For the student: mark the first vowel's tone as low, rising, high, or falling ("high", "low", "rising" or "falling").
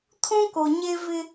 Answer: high